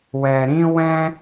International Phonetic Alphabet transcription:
wɛ˧ɾĩ˦ wɛ̃˦

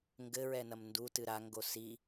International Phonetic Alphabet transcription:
ŋɡɘɹɛnɐm ndutɨ ɾaŋɡo si

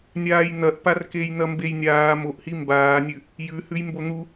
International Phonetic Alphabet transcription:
nʲaːjn̪ɐʔpar kejn̪ɐmbejnʲaː moʔhi mbaːnʲʉ | jʉhʉj mbon̪u

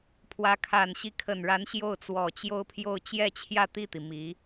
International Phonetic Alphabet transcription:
pʰwä˧˥kʰa˨˩n ɕi˧˥kʰə˨˩nɻa˧˥n ɕjo˥˩ʊ̯t͡swɔ˨˩t͡ɕjo˥ʊ̯pʰjo˥˧ʊ̯ t͡ɕjɛ˥˧t͡ɕʰjä˥˧t̪i˥˩t̪i˩ mi˧˥

